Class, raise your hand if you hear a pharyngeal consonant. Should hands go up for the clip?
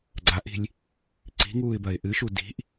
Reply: no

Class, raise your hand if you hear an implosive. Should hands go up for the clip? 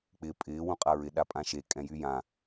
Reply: yes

